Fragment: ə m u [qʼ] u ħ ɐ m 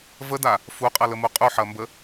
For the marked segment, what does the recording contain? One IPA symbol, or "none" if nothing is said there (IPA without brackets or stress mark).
qʼ